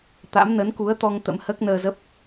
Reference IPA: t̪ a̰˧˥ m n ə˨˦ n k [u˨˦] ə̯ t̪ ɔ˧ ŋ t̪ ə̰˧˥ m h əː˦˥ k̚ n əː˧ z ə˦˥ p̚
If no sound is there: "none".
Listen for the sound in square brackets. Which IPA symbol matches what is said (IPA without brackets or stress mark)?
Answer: u˨˦